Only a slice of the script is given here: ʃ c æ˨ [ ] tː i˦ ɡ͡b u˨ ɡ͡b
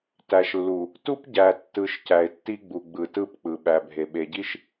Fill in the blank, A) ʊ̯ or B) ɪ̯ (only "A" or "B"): B